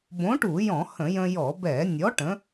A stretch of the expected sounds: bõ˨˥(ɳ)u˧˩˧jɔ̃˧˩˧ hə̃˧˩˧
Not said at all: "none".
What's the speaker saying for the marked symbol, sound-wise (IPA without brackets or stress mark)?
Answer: ʈ